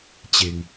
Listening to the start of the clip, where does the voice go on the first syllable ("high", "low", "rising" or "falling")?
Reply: low